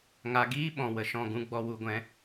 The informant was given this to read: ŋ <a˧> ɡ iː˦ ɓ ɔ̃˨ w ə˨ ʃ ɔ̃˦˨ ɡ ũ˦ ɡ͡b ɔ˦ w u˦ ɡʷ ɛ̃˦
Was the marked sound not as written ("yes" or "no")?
no